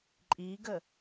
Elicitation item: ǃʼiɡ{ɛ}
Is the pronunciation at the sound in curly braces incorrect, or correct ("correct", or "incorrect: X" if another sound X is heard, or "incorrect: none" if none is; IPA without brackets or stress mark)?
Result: incorrect: ə